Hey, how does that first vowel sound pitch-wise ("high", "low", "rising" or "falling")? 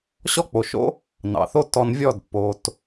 high